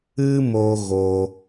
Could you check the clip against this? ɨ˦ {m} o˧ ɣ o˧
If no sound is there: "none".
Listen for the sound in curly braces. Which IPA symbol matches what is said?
m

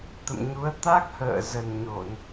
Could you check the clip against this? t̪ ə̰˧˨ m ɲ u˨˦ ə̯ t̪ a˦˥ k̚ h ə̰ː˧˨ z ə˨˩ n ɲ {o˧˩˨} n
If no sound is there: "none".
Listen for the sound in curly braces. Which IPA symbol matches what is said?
o˧˩˨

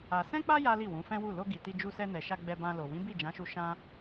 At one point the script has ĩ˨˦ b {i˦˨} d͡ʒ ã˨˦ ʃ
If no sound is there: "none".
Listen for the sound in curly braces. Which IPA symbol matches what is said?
i˦˨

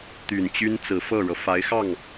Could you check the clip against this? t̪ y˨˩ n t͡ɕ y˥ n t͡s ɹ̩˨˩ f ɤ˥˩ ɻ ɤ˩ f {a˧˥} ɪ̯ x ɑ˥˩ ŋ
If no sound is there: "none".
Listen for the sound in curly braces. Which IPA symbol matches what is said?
a˧˥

